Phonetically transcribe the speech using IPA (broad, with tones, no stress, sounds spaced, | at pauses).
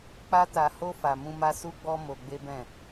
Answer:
k͡p a˦ t a˧ h o˦ f a˧ m ũ˦ m a˦ s u˦ ɡ͡b ɔ˦ m o˧ ɡ͡b e˦ b ɛ̃˦˨